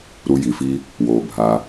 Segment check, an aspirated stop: absent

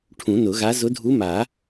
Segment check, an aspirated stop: present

